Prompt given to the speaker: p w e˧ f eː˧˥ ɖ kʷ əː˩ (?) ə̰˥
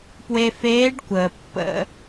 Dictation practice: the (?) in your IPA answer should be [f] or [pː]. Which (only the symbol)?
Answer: pː